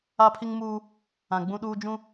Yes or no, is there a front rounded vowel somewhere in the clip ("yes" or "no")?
no